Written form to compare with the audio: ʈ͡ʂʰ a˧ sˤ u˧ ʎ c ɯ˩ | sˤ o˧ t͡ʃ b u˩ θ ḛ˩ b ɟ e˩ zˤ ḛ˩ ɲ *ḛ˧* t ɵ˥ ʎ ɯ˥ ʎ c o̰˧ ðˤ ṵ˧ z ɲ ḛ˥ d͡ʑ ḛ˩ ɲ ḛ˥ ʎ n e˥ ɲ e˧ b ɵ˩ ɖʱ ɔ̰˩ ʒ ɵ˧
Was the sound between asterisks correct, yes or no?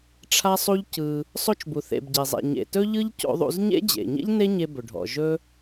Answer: no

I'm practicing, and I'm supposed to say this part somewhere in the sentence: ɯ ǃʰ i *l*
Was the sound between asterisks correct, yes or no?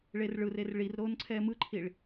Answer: no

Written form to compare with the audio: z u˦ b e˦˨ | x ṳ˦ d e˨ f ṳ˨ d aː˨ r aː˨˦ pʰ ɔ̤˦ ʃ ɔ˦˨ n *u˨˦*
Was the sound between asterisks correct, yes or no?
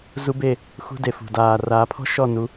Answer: no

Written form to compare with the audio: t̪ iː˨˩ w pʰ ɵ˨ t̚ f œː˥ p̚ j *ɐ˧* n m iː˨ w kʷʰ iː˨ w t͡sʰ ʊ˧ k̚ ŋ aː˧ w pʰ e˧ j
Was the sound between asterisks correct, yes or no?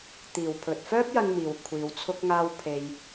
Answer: yes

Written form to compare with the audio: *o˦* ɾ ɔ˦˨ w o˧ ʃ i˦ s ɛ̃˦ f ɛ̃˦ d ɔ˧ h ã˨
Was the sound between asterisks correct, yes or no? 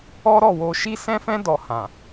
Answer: no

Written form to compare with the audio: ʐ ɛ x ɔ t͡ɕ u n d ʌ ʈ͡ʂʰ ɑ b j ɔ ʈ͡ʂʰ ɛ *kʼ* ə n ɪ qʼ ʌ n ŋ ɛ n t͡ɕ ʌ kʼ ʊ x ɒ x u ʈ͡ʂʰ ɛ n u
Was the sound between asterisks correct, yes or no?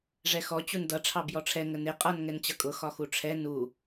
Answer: no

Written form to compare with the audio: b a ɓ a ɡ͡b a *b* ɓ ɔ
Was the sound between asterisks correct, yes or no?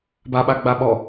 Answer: no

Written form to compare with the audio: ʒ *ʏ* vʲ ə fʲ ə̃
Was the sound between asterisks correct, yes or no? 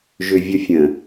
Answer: yes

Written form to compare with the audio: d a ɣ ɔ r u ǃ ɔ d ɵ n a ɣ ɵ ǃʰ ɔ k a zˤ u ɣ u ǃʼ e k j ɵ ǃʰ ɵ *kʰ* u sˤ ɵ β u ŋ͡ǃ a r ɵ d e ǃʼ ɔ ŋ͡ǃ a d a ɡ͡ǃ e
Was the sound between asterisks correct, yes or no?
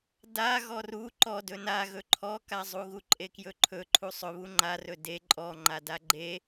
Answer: no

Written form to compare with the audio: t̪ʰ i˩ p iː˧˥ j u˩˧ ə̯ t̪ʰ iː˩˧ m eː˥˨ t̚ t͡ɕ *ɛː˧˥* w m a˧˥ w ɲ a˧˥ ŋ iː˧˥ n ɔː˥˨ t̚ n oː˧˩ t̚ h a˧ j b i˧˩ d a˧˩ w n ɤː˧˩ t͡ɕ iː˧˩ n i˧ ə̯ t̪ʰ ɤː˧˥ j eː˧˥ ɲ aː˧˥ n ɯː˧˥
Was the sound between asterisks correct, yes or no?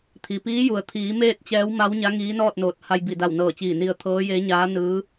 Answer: yes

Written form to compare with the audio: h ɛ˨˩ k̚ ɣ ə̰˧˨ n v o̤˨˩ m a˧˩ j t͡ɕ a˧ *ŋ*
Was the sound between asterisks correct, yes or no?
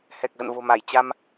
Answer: no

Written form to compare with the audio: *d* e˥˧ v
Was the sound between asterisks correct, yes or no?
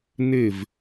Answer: no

